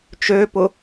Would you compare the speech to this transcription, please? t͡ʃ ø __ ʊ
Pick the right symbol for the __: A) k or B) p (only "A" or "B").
B